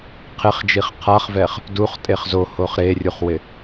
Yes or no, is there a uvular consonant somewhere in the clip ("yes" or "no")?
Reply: yes